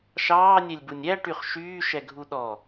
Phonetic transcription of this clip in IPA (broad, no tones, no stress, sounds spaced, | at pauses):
ʃ ɑː nʲ ɛ lʲ b u nʲ æ ʈ y χ ʃ yː ʃ ɛ ɡʱ u ɗ ɔ